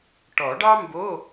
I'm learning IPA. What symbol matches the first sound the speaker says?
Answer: ʈ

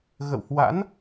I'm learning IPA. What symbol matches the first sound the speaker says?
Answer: ɣ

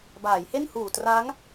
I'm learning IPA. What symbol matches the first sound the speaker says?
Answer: b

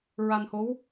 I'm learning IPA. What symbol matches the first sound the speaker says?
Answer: ɹ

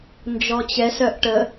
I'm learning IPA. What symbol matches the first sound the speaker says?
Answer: n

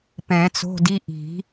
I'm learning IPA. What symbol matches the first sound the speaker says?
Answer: p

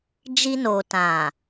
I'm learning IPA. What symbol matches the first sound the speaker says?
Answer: d͡ʒ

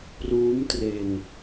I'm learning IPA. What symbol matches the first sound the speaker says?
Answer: p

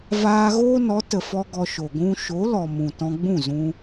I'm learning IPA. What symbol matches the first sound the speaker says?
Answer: v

